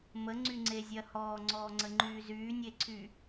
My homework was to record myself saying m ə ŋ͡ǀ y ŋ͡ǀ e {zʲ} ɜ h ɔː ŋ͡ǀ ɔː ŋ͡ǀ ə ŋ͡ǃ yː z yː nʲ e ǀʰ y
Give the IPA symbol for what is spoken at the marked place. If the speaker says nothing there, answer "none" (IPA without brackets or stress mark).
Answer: zʲ